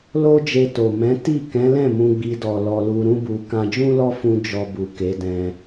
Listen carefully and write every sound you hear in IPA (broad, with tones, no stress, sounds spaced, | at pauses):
l o˦ d͡ʒ e˧ t o˨ m ɛ̃˨˦ t i˦˨ k ɛ̃˨˦ l ɛ̃˦˨ m ũ˧ ɡ͡b i˧ d ɔ˨ l ɔ˧ l u˧ ɾ ũ˦ b u˧ k ã˧ d͡ʒ ũ˦ l ɔ˦ f ũ˦ d͡ʒ ɔ˧ b u˨ k e˨˦ d ɛ̃˧